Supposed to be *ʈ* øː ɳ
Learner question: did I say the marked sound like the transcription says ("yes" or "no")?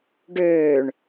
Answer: no